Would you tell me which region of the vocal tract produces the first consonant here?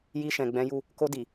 palate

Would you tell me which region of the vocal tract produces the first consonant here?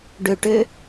retroflex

